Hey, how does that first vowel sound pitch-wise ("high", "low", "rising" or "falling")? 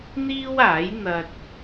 high